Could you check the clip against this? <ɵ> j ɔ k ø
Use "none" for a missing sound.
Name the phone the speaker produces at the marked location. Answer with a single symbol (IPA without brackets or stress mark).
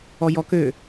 ɔ